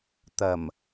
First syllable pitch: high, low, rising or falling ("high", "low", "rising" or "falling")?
low